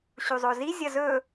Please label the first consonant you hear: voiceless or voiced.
voiceless